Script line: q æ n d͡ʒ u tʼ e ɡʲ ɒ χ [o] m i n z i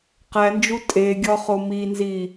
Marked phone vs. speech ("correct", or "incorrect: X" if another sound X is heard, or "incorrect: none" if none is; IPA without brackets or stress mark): correct